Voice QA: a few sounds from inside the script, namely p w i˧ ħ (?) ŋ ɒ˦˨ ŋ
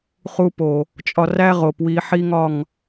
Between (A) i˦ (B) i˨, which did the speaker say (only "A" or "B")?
A